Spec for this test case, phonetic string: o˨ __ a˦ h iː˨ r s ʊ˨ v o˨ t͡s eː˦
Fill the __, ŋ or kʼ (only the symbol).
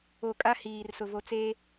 kʼ